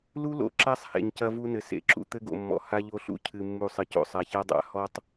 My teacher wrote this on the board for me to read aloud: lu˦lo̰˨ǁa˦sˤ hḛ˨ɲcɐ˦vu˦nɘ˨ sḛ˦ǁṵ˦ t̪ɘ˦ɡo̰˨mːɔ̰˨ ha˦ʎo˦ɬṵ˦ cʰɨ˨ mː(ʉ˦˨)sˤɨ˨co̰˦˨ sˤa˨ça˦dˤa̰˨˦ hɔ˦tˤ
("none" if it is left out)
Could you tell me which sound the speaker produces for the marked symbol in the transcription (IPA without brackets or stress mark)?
u˦˨